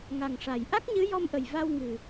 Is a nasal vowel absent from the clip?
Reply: yes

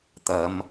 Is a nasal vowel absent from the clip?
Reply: yes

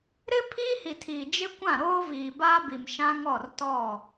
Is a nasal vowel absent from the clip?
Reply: no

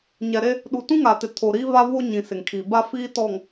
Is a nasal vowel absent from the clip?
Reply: no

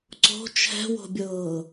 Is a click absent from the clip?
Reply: no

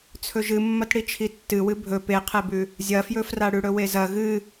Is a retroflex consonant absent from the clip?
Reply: no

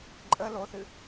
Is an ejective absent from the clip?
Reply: no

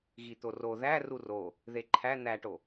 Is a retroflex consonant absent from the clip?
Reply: no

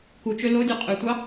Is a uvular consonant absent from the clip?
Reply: no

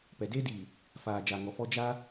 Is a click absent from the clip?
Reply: yes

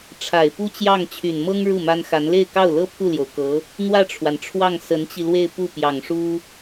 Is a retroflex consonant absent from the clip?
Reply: no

